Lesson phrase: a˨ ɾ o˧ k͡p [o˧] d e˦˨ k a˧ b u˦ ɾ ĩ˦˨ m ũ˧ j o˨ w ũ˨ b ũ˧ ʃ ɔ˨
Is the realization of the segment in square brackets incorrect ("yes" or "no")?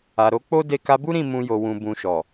yes